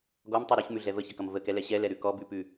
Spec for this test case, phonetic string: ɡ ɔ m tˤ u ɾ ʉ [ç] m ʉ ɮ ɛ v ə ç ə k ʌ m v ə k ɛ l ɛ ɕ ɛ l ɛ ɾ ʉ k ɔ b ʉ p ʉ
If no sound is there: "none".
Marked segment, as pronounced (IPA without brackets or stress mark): ç